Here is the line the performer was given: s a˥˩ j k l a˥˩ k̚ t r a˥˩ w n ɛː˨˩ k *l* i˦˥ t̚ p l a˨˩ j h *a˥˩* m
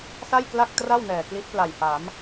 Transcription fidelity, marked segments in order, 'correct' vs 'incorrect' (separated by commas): correct, incorrect